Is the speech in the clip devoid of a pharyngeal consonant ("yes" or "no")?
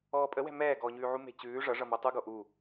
no